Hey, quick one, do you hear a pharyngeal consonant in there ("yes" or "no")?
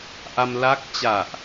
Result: no